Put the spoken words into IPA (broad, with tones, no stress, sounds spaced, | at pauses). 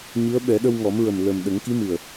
ɲ ɨ˧˥ ə̯ ɓ ɛ˨˩˦ ɗ ə˧ w ŋ ɔ˨˩˦ m ɹ ə˨˩ m l ə˨˩ m ɗ ə˨˩˦ ŋ k i˧˥ m ɨ˨˩ ə̯